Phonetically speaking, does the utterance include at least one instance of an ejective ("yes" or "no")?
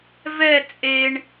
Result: yes